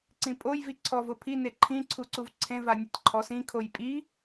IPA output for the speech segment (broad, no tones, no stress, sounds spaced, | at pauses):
ǀ ĩ pʼ o j v i ǀʰ ɔ v ʊ pʰ i n e ǃʰ ĩ ǀʰ u ǀ u v ǀʰ ẽ v a nʲ a tʲ ǃʰ ɔ s ĩ kʰ o j pʼ i